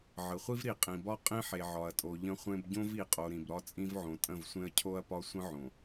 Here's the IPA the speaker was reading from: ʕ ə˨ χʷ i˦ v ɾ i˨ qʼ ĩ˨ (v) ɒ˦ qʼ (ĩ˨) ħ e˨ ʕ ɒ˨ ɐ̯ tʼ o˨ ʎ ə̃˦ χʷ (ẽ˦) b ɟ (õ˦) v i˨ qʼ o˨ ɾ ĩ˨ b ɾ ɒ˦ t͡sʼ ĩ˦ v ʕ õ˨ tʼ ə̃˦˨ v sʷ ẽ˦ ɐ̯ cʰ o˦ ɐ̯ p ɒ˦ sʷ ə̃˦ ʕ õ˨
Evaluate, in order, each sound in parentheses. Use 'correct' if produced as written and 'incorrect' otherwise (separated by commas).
incorrect, incorrect, correct, correct